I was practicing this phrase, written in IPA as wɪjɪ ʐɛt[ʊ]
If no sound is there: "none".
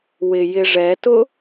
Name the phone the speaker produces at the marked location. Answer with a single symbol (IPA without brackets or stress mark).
ʊ